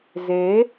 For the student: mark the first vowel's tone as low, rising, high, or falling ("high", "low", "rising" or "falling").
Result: rising